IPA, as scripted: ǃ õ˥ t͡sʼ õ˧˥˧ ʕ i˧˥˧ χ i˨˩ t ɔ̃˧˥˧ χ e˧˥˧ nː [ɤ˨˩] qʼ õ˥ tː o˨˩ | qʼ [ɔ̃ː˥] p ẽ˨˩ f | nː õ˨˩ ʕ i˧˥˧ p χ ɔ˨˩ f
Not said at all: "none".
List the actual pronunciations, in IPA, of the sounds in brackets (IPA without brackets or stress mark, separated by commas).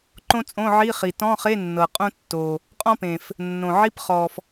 ɤ˨˩, ɔ̃˥